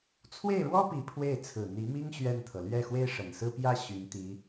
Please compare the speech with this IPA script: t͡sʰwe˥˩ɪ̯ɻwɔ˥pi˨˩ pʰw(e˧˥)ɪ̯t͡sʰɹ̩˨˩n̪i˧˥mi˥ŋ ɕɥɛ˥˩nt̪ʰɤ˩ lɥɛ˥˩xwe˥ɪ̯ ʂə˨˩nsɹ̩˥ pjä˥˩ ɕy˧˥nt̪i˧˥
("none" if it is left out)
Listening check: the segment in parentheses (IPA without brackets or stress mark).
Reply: e˥˩